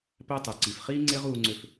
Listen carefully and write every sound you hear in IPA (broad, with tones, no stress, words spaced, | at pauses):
pæ˦tˤɯ˨ǀi˨f χiː˦ŋ͡ǀe˦ʁ uː˧ŋ͡ǀø˧f